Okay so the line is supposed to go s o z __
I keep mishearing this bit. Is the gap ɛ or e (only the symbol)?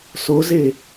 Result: e